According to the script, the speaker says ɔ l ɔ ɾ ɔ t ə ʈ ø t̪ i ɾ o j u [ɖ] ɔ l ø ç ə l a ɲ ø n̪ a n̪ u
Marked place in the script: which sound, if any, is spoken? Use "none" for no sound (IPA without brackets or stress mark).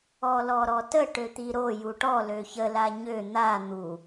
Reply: ʈ